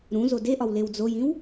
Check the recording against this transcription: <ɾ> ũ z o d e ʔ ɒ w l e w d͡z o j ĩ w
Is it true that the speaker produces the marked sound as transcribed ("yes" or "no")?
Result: yes